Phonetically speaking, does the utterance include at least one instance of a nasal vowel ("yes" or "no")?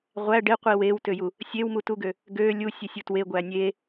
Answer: no